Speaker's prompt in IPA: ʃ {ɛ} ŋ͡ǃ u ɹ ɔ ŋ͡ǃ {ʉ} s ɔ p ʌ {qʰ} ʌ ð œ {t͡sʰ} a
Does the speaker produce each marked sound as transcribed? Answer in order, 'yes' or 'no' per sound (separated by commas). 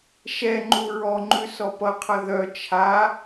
yes, yes, yes, no